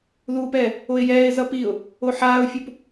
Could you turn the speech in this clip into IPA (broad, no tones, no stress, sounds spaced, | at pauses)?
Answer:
ð uː p ɛː | o ɪ̯ j ɛː ɪ̯ z ʌ p i ʊ̯ | o ħ aː ʊ̯ fʲ u p